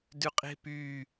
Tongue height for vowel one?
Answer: high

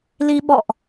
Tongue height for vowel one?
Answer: high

